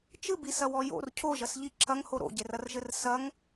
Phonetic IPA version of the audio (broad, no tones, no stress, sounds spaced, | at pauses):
t͡ʃ ɨ b i s ɐ w ɔ j o̰ r cʰ o ʒ ɐ s ʎ i ǁʰ ɐ ŋ h o ɾ o̰ ɟ e r ɐ r ʒ ɘ r s ɐ ŋ